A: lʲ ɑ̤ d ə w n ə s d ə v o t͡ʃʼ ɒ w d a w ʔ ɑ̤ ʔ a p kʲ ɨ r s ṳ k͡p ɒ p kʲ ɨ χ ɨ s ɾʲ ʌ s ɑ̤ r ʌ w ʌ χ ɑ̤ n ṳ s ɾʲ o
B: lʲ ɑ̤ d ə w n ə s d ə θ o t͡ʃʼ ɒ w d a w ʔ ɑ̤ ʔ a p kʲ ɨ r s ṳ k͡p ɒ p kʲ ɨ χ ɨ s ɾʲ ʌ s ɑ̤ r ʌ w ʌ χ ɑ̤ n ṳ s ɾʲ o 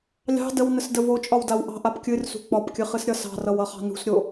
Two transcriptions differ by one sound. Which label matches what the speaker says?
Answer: A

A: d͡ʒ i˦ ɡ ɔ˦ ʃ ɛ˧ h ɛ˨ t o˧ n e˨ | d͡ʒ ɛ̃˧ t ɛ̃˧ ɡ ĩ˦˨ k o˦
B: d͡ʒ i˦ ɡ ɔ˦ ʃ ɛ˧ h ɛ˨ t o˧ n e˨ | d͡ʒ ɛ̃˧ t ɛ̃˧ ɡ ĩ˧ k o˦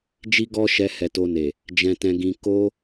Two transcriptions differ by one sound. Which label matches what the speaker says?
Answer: B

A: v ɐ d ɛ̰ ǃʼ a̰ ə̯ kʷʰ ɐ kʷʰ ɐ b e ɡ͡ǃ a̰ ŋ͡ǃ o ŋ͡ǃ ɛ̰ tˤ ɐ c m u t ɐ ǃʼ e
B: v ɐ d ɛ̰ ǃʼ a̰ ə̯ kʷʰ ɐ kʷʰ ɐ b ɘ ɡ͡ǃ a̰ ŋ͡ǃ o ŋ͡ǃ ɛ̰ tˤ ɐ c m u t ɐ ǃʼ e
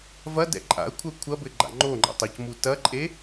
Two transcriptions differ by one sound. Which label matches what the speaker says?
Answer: B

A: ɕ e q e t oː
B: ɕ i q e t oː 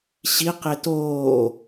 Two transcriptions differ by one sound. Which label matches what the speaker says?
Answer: B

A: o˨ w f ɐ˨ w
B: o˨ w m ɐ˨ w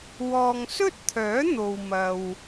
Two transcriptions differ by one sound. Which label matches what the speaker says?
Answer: B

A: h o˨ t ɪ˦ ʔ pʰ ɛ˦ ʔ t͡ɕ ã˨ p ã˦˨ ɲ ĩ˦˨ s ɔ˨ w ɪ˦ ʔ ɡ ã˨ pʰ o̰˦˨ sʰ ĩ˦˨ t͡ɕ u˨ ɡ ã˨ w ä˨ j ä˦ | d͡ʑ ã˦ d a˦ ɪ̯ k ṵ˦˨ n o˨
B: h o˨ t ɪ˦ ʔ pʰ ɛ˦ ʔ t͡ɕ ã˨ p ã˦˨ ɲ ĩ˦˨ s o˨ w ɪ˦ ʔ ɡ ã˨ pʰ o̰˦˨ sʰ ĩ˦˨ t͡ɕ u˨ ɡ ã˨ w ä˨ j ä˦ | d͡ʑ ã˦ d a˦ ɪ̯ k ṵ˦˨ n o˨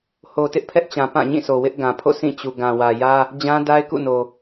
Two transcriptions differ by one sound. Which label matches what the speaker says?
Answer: B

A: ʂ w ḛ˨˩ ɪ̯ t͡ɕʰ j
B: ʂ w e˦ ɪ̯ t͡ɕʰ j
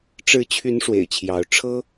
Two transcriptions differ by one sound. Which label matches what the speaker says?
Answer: A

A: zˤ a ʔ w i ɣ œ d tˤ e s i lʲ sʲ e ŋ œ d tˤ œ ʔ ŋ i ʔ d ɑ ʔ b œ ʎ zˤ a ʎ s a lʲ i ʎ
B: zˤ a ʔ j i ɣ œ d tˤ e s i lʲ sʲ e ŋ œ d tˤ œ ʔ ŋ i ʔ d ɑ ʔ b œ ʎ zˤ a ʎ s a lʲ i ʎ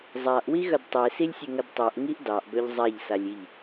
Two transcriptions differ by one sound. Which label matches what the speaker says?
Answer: A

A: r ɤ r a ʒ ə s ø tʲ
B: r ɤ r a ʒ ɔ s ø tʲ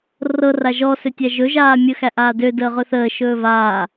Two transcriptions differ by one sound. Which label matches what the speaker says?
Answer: B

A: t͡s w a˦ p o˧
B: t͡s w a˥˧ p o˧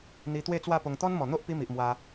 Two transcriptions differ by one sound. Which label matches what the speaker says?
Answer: B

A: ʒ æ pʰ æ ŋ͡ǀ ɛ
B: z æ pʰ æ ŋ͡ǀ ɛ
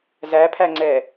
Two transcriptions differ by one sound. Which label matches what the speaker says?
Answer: B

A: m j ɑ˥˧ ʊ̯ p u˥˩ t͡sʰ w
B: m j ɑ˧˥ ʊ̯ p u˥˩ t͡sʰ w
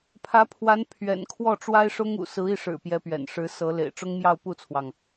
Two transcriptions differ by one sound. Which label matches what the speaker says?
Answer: A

